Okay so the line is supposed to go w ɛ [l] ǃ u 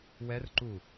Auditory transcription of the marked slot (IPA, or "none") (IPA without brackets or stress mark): r